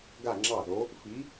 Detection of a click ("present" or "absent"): present